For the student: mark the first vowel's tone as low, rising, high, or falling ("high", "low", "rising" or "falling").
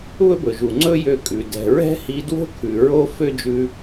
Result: high